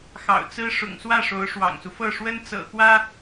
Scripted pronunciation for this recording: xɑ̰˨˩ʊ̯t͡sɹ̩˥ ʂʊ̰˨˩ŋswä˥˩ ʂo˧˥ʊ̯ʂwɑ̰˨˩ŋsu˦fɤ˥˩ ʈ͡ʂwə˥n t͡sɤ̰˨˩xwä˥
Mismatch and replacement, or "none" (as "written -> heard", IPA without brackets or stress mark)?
ʈ͡ʂ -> ʂ